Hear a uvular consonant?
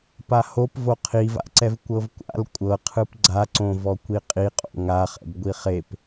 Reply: yes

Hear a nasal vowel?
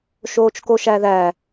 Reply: no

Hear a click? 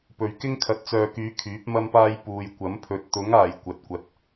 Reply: no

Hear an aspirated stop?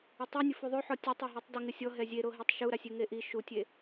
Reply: no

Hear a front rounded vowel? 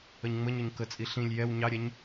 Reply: no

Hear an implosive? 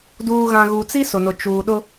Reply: yes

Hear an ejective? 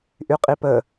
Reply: yes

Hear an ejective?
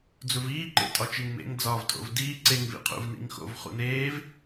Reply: yes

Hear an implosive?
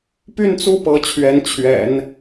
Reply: no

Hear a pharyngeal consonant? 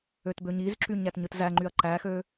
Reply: no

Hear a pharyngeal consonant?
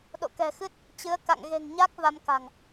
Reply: no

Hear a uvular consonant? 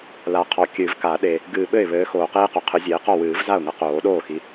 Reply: yes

